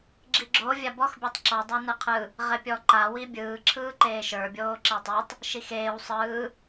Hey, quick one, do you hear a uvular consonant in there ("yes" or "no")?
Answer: yes